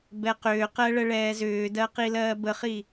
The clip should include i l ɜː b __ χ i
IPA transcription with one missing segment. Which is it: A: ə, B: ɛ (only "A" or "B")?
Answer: A